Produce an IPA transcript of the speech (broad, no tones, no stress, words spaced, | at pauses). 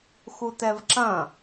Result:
xutɛvǁɐ̃